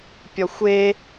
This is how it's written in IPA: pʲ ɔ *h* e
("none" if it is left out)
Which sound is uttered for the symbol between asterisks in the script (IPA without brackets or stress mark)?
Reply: xʷ